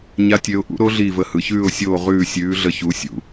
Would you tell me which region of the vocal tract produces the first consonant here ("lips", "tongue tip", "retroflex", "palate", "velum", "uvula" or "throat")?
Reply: palate